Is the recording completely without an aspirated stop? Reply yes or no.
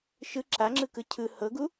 no